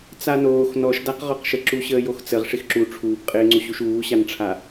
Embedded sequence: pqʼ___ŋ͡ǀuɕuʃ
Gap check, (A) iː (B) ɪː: B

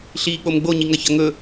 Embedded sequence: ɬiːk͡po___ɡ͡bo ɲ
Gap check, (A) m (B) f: A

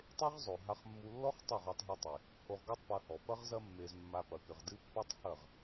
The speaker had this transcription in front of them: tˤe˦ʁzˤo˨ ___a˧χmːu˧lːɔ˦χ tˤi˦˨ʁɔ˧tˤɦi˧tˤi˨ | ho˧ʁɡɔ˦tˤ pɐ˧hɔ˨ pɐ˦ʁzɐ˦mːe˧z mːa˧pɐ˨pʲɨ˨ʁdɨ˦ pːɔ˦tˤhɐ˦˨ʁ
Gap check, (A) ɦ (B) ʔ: A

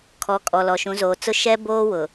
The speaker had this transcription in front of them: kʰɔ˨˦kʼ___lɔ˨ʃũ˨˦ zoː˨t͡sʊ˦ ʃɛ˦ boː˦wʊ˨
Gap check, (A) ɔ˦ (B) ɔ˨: B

